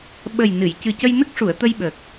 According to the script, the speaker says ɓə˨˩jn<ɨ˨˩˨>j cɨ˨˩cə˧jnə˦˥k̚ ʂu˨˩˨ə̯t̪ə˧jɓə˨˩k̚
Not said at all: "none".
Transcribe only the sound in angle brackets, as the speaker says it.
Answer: ɨ˨˩˨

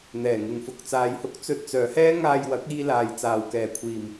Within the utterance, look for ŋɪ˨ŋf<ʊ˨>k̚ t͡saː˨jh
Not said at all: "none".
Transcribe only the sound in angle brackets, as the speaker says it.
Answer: ʊ˨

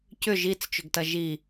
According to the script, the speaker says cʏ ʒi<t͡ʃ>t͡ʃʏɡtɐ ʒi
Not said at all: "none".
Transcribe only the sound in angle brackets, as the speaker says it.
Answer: t͡s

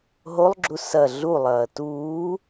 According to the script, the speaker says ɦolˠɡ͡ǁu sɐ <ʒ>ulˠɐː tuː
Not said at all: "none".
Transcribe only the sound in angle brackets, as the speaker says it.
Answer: ɮ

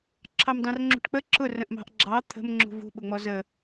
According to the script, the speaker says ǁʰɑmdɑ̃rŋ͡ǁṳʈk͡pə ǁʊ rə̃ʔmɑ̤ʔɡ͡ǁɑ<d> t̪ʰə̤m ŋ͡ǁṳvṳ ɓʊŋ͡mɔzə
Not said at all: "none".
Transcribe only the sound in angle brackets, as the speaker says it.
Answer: none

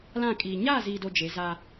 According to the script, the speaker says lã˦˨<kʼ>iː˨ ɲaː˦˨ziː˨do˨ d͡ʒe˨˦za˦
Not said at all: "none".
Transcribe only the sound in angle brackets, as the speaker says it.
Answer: kʼ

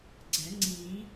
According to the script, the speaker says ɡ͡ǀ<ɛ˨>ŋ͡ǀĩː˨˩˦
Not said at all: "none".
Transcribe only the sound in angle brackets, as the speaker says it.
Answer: ɛ˨˩˦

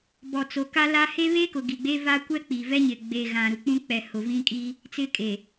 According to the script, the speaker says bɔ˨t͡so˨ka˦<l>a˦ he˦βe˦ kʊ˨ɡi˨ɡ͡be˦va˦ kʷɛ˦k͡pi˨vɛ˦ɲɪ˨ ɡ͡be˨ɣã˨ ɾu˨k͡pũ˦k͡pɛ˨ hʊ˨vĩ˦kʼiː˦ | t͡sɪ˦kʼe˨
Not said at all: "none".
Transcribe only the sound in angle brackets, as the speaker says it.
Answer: l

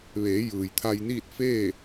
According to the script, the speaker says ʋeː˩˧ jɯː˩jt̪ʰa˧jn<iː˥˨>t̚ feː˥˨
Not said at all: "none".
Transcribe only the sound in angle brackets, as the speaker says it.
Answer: iː˥˨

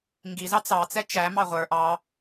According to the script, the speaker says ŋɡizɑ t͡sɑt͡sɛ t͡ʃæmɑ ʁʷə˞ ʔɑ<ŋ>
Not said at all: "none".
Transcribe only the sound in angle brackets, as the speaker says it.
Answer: none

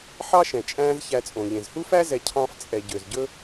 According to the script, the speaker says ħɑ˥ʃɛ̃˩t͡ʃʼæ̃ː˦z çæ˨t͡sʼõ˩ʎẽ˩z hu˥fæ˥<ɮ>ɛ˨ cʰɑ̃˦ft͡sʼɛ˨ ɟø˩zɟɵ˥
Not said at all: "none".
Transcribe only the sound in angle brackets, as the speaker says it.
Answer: z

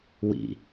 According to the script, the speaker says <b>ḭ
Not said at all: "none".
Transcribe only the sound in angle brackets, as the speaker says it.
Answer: w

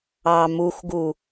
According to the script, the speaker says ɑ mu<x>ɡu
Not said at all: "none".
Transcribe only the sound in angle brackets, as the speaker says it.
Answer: x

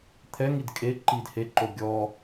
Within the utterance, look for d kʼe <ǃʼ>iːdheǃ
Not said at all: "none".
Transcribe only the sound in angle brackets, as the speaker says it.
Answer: ǃ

